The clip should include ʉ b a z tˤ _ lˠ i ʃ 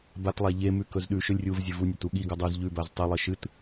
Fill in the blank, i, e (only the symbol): i